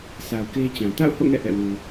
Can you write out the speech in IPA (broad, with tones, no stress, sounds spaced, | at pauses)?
s a˨ ʊ̯ k e˦ t͡ɕ ã˨ t a̰˦˨ ʊ̯ h o̰˦˨ ŋ ɛ̰˦˨ ʔ ɛ̰˦˨ w u˨